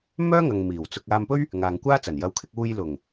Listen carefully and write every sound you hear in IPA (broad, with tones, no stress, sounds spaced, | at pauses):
m œː˥ ŋ ɐ˨ ŋ m iː˨˩ w t͡s ʊ˧ k̚ aː˧ m p ɵ˥ ɥ | ŋ aː˨ ŋ kʷ aː˥ t͡s ɐ˨˩ n j ɐ˨˧ w kʰ ɪ˧ k̚ uː˧ j l ʊ˨˩ ŋ